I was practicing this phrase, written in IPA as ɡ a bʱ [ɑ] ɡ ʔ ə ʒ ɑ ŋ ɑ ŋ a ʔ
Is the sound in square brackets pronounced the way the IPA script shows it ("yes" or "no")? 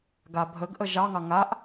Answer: no